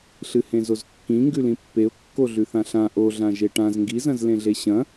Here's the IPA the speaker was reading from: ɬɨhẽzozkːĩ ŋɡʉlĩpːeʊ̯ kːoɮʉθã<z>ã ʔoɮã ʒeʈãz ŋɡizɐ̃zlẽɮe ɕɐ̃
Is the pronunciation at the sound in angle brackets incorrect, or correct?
incorrect